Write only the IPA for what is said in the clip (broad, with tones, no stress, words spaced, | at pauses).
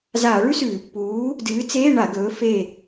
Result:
zaː˧˩˧ɭʉ˥sʉː˧˩˧pːuː˨˥ | dɨː˨˥ t͡seː˧˥˧ɳa˧˩˧ ɡɵː˨˥ fe˦˨